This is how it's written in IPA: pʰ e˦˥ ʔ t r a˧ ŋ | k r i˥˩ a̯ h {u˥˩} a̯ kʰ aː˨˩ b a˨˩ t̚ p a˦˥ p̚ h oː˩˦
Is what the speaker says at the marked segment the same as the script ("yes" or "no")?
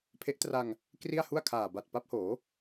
yes